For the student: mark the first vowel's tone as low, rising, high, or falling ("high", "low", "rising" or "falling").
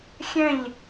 falling